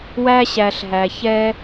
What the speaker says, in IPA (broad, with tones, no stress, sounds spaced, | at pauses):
w æ˦ ɕ æ˧ ɬ ɦ æ˧ ç ɛ˦